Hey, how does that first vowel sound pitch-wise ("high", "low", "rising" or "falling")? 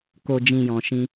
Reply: low